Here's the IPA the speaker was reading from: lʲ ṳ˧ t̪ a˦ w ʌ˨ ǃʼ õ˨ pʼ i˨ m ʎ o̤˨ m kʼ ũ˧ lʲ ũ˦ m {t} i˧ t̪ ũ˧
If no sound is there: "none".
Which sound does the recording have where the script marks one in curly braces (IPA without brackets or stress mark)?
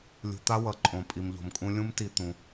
t